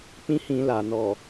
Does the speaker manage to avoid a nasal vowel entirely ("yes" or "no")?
no